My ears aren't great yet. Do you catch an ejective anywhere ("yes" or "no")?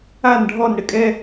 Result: yes